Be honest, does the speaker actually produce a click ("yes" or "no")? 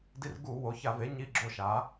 yes